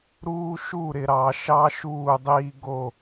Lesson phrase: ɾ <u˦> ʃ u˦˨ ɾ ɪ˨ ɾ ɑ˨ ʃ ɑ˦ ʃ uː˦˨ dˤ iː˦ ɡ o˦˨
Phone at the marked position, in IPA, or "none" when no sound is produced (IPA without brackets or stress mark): uː˦